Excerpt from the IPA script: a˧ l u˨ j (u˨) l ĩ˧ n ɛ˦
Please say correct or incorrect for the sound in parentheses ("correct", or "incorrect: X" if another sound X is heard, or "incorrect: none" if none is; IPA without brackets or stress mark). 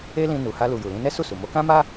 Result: correct